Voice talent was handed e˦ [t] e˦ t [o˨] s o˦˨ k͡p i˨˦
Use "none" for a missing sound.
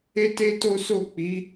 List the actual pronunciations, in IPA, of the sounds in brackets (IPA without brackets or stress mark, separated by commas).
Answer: t, o˦